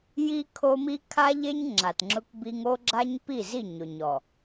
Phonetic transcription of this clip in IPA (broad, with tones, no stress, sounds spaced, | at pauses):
j i˦ kʰ o˦ m i˦ kʰ a˦ ʎ e˦ ɲ ŋ͡ǁ a˨ t ŋ͡ǁ ʊ˦ k b i˦ ŋ o˦ ɡ͡ǁ a˦ ɲ p i˦˨ z i˦˨ ɲ ʊ˨ ɲ ɔ˨